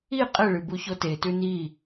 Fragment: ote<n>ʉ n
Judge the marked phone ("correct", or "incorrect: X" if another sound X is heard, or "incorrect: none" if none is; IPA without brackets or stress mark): incorrect: t